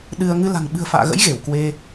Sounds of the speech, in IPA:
ɗ ɨ˧ ə̯ ŋ ɨ˧ l a̤˨˩ ŋ ɓ ɨ̤˨˩ ə̯ f a̰ː˧˨ ɣ ə̰˧˥ j ɣ e˧˩ w k w e˧

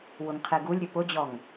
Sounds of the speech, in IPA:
w ʊ ŋ qʰ e ɡ u lʲ ɾʲ ɵ p ʊ d͡ʑ ɔ ŋ

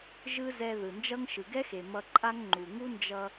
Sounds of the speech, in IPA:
ʒ ɯ˥ z ɛ˧ ð ɯ˩ n d͡ʒ ʌ˥ ŋ ʃ ɯ˩ ɡ ɛ˥ x e˩ m ʌ˧ ǃʼ a˥ ŋ ŋ͡ǃ u˩ ŋ u˥ n d͡ʒ ʌ˧

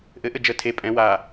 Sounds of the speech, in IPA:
ʔ ɘ ʔ ɘ d͡ʒ ə tʰ e pʼ ɛ̃ w a

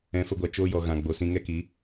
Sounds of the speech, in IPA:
ɛ̃˨˦ f ə˧ ɡʷ a˨ t͡ʃ oː˧ j ɔ˨ ɣ ã˨ ɡ͡b o˨ s ĩ˧ ŋ ɛ˦ k i˨˦

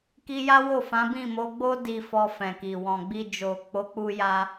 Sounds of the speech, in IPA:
k i˧ j a˦ w o˦˨ f ã˨˦ b ĩ˦˨ m o˨˦ ɡ͡b o˦ d i˧ f ɔ˧ f ɛ̃˨ k i˨ w ɔ̃˨ ɡ͡b i˧ d͡ʒ o˨ k͡p o˨˦ k͡p u˦ j a˦

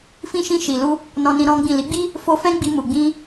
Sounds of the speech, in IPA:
f ĩ˧ ʃ ĩ˧ ʃ i˨ l u˧ | n ɔ̃˧ n ĩ˧ ɾ ɔ̃˦ ɡ͡b ĩ˦˨ l i˨˦ ɡ͡b i˦ | f o˧ f ɛ̃˦ ɡ͡b i˧ m u˨ ɡ͡b ĩ˧

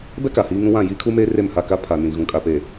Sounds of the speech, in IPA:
b ɛ˦ k a˨ h iː˦ ŋ ũ˦ w ã˦˨ j iː˦ kʰ u˦ m eː˦ r e˦˨ m h a˦˨ k a˦ pʰ a˨ n ĩ˨ ɣ ũ˨ kʼ a˨ p eː˨

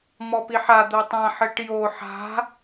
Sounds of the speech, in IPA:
m ɔ p i ħ a d̪ o tˤ ã ħ ɘ ʈ j o ħ a̤

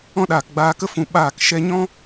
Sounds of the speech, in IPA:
ɔ̃˦ ɗ aː˨ k ɡ͡b aː˧ k ə˦ f ũ˨ ɓ aː˦˨ k ʃ ɛ˧ ɲ ɔ̃˦

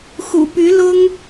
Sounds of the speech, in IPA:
x ṵ˨˩ p y˧˥ l ʊ˥ ŋ

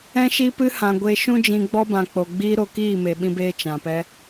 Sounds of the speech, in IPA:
ɛ̃˧ ʃ i˧ p ɨ˧ h ã˨ ɡʷ e˧ ʃ ũ˦ d͡ʒ ĩ˧ ɡ͡b ɔ˧ b ã˨ k͡p o˨ ɡ͡b iː˧ ɾ o˧ k iː˦˨ m e˨ ɓ ĩ˧ b eː˧ t͡ʃ ã˨ p ɛ˧

